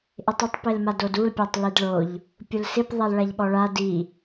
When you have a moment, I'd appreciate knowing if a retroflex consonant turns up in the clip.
yes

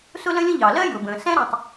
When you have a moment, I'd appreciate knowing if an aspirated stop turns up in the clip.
no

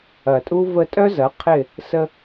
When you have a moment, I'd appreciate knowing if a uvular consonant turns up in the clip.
yes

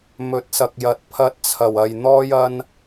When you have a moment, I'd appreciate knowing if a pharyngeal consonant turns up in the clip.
no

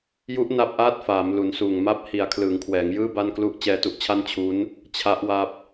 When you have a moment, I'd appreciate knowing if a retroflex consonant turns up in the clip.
no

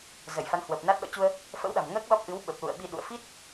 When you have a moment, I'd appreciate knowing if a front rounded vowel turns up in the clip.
no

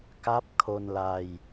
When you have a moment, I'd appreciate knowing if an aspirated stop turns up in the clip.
yes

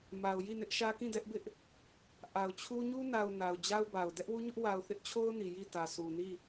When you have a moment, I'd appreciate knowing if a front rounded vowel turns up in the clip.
no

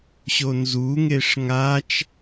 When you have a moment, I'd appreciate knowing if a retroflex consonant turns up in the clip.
yes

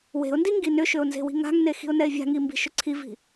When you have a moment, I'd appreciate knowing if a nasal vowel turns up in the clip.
no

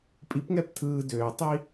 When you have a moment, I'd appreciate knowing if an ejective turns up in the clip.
yes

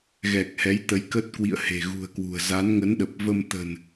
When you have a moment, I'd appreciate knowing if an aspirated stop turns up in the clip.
no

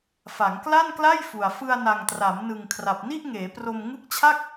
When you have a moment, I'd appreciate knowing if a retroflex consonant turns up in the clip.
no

